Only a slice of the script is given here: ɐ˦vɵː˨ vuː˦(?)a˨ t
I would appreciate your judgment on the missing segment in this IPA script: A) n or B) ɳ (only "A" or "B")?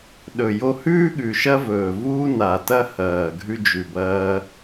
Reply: A